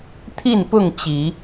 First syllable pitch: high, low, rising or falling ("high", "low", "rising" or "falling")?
falling